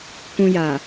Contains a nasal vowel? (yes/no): yes